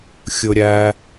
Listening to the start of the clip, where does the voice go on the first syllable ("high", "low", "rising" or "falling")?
low